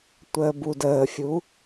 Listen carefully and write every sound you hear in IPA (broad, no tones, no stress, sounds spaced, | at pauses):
tʷ əː b u d əː fʲ u